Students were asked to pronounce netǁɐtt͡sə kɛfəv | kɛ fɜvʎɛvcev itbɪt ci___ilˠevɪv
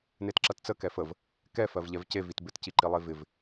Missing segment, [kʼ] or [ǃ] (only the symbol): ǃ